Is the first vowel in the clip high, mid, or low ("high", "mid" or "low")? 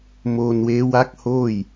mid